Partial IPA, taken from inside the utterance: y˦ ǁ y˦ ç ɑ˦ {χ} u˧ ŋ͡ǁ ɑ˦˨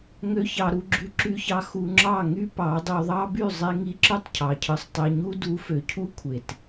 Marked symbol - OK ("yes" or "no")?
no